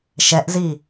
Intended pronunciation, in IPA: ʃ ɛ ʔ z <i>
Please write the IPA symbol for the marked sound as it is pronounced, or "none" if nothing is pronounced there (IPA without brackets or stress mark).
i